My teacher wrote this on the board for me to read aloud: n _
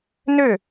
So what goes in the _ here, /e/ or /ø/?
ø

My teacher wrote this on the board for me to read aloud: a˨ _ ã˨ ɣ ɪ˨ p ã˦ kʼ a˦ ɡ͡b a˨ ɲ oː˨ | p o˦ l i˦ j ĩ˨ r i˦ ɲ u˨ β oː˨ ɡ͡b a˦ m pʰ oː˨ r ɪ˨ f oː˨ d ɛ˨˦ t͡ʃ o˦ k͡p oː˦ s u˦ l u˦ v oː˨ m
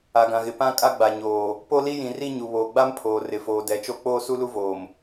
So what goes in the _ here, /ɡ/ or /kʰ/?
ɡ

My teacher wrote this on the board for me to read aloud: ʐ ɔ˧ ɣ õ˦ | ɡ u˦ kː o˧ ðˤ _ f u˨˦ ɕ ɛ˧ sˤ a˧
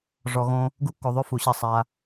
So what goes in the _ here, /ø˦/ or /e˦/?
ø˦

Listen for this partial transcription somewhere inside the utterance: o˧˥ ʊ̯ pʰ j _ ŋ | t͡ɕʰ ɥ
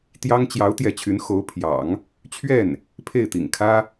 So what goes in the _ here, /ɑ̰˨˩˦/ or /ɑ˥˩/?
ɑ̰˨˩˦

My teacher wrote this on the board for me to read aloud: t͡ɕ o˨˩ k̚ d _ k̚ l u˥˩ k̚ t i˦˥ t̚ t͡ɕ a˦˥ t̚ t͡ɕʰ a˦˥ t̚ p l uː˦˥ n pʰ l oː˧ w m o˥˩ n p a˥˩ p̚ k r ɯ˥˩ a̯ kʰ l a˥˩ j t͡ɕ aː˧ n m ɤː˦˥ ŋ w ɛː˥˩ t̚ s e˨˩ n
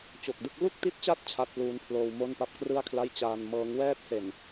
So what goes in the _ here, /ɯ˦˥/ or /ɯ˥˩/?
ɯ˥˩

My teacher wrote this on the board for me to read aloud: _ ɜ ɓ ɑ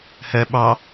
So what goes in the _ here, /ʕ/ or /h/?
h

